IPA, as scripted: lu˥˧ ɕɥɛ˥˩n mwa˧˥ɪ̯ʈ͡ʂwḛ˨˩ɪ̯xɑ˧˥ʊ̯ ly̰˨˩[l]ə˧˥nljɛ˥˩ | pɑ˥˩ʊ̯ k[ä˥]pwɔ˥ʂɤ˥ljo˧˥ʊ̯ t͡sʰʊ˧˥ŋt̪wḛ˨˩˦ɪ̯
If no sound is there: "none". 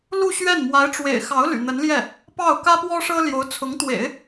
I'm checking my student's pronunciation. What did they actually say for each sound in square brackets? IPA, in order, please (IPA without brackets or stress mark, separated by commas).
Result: n̪, ä˥